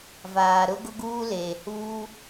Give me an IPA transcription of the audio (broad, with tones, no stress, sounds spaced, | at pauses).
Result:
v aː˨ ɾ ʊ˦ ɡ ʊ˦ ɡ uː˦ l eː˨ h uː˦